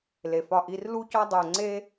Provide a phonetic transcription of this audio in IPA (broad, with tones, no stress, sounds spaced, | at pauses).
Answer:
l e˩ f ɒ˧˩ ʔ i˧ r l u˥ c ɒ˥ dˤ o˧˩ ŋ͡ǀ e˥